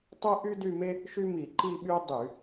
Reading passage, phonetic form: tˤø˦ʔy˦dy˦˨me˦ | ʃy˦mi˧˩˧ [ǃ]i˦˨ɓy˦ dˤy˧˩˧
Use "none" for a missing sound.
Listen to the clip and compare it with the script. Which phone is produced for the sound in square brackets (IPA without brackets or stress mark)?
ǃ